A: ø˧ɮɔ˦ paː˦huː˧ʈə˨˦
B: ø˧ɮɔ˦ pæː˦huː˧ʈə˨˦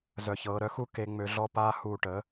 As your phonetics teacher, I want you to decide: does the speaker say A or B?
A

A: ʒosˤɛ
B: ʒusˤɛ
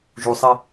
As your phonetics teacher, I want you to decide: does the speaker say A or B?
B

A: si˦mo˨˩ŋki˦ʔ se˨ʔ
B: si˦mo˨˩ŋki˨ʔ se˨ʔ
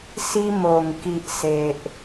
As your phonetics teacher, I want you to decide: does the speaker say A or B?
B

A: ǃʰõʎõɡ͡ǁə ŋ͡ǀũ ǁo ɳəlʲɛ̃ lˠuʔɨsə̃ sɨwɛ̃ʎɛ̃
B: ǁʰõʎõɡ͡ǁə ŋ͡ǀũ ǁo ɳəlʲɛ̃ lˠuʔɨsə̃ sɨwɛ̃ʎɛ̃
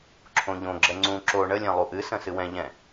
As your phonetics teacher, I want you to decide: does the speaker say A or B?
B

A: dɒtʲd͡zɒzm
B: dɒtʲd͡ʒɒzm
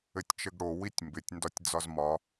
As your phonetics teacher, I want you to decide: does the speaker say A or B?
A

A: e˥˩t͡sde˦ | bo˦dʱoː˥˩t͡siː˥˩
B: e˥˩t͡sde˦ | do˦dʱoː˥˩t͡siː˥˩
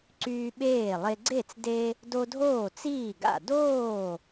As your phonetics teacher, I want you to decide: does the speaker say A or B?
B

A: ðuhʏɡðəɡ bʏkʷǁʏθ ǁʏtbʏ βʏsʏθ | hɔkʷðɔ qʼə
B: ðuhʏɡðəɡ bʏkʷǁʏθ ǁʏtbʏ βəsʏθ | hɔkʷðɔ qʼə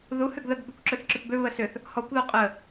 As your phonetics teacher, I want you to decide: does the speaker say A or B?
B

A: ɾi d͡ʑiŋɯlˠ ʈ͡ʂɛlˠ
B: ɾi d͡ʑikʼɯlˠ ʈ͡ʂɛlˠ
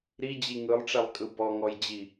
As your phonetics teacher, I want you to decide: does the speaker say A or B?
A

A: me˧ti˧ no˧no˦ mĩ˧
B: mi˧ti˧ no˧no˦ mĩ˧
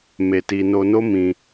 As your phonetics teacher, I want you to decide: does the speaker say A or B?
A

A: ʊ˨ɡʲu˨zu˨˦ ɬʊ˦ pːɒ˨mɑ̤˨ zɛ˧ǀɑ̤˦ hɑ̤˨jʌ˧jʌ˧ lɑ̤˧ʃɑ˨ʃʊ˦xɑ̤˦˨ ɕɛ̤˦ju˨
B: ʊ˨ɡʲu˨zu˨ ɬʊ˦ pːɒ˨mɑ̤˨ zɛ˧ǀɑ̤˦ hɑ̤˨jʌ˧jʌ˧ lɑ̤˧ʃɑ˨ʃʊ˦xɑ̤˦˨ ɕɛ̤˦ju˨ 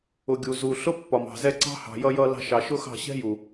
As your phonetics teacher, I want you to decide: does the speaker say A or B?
B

